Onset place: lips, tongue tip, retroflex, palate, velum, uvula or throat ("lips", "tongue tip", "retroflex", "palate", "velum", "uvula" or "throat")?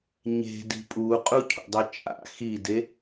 palate